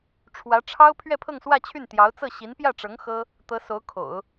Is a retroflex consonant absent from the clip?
no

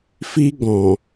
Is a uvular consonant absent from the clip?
yes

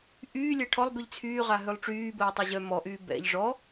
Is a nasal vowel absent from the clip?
yes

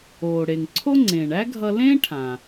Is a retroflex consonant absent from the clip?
no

